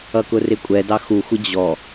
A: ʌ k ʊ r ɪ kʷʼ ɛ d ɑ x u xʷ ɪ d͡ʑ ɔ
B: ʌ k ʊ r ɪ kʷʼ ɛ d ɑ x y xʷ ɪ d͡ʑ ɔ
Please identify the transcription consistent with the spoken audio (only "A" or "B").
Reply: A